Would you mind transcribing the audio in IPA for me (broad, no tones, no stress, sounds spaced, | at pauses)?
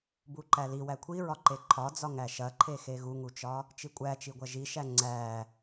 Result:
b u ǃ æ l i w æ kʷʰ i ɹ ɒ ǃ e ǃʰ ɒ d͡z ɒ ŋ æ ʃ ɐ ǃʰ e x e ɣ u ŋ u t͡ʃ ɒ | t͡ʃ i kʷʼ æ t͡ʃ i ɡʷ ɐ ʒ i ʃ æ ŋ͡ǀ æ